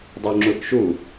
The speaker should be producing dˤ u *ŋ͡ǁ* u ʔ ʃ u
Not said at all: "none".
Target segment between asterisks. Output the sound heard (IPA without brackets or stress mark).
ŋ͡ǁ